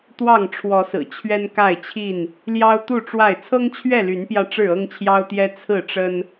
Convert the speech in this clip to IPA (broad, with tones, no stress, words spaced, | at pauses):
t̪wɑ˥˨ŋ ʈ͡ʂʰwɔ˨˦sɹ̩˨˩ t͡ɕʰɥɛ˦nka˥˨ɪ̯t͡ɕʰi˥˨n | ljɑ˦ʊ̯t̪u˥˨ʈ͡ʂwa˥˨ɪ̯ t͡sʰɤ˦ŋt͡ɕʰɥɛ˥˨ly˨˦npjä˧ ʈ͡ʂɻ̩˥˨ɤ˦ŋt͡ɕʰjɑ˦ʊ̯t̪jɛ˦ t͡sʰɹ̩˥˨ʈ͡ʂə˦n